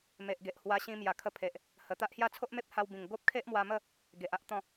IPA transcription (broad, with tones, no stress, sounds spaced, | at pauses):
m e˨ ʔ ɡ e˨ ʔ h w a˧ ɕ ĩ˧ m j a˨˩ kʰ ə˧ pʰ e˨ ʔ | h ə˨˩ t̪ a˦ ʔ h j a˦ t͡sʰ o˦ ʔ m e˦ p̚ h a˧ w b ĩ˨˩ ŋ ɡ o˦ p̚ kʰ e˦ ʔ m w a˧ m ə˥˧ | ɡ e˨ ʔ a˦ ʔ t̪ ɔ̃˥˧